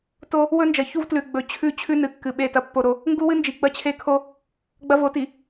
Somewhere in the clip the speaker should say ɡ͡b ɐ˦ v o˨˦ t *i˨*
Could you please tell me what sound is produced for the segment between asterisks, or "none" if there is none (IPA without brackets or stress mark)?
i˨